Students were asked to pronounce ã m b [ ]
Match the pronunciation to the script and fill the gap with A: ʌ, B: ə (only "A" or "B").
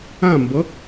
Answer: A